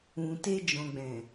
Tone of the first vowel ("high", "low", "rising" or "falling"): low